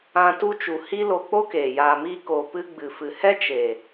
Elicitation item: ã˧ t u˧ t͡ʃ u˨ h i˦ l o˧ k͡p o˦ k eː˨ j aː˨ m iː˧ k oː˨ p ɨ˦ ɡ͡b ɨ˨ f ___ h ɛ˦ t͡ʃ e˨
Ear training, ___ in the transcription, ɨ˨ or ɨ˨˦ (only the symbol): ɨ˨